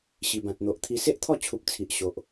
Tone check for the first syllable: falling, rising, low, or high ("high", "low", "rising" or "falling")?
low